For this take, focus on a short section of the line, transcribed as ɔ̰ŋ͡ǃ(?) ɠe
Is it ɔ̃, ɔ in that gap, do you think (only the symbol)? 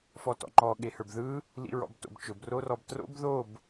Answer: ɔ